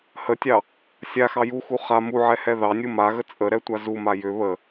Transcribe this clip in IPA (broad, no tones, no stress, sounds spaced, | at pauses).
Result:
h ə tʲ ɑ | sʲ a x ɑ j u x u χ a m u ʕ ɛ h ɛ ð ɑ nʲ u m a ɣ ə t͡sʼ ə ɾ ɛ tʷ a z u m a j ʏ β ə